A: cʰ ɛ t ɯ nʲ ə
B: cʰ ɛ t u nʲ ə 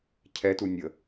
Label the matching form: B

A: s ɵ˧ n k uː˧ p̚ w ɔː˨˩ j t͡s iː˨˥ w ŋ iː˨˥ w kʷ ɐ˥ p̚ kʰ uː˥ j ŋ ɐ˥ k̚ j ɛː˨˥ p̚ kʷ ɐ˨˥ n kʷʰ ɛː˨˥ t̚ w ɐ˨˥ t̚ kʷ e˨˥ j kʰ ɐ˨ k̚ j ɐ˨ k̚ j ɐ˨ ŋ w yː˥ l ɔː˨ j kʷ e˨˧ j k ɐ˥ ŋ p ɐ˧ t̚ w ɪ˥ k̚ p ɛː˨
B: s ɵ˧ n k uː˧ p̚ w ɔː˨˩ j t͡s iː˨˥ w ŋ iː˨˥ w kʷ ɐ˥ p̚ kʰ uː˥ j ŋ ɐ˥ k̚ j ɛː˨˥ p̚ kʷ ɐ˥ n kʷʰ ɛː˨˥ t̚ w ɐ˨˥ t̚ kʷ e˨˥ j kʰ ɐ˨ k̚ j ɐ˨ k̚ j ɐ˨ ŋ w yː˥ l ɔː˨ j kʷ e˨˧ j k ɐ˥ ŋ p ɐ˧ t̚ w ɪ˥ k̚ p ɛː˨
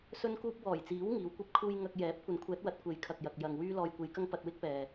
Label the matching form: A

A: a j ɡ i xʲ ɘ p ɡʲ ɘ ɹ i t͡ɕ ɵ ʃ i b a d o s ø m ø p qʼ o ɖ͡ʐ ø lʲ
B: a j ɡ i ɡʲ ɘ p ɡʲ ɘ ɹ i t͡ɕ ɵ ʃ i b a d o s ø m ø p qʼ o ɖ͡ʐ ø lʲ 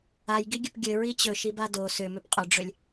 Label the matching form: B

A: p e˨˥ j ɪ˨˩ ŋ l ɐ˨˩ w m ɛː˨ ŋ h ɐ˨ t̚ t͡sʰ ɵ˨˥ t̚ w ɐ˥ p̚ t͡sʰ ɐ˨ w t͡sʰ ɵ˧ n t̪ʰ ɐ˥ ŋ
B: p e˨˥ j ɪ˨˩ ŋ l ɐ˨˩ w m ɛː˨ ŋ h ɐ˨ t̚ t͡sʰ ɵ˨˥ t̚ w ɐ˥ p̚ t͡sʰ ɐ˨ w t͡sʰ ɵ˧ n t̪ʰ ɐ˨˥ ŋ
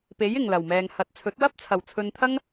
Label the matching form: A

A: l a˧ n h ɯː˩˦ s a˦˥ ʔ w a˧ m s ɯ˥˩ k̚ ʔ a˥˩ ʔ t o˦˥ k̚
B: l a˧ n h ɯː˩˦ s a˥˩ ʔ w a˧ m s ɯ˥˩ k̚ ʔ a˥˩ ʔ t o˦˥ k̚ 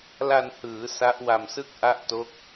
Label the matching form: A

